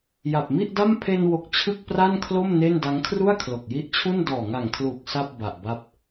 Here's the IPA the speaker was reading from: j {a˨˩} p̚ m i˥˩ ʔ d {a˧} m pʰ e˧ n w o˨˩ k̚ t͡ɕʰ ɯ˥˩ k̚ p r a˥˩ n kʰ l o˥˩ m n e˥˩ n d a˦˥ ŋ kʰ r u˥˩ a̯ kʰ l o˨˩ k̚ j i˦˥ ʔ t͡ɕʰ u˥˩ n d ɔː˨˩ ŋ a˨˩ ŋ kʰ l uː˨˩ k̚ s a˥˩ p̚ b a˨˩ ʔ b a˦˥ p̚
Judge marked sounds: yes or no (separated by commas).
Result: yes, no